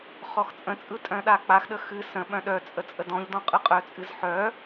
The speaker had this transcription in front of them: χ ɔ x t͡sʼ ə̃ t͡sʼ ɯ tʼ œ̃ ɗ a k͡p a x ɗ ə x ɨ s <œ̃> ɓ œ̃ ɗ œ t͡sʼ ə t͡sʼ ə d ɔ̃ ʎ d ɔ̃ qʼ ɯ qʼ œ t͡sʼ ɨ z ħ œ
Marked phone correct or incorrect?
incorrect